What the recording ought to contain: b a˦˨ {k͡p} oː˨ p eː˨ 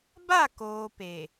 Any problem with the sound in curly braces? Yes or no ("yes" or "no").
yes